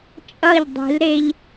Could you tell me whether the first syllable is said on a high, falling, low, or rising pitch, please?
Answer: falling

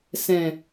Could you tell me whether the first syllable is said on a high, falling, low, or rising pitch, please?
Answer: low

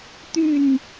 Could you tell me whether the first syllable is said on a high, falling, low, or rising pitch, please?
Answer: falling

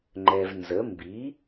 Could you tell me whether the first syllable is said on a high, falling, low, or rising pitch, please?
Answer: low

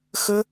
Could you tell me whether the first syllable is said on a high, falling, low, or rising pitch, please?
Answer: high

